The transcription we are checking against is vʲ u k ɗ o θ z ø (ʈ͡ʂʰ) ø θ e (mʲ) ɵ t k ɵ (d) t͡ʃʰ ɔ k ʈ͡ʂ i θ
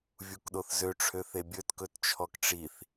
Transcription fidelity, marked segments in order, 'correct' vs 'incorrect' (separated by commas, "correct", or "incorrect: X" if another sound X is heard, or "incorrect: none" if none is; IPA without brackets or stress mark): correct, incorrect: bʲ, incorrect: t